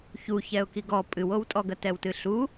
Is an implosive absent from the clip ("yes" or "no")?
yes